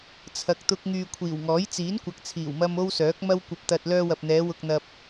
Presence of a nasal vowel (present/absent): absent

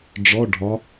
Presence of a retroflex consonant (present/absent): present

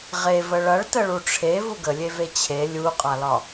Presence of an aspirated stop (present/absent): present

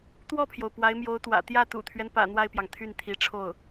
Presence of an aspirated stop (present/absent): present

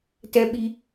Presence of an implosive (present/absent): present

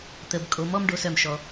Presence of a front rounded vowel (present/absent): present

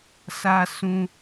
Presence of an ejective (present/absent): absent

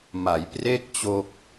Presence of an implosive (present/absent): absent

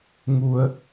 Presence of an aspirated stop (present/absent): absent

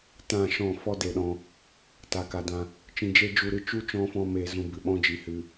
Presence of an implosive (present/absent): present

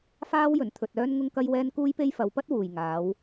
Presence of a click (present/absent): absent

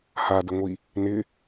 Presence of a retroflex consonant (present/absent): absent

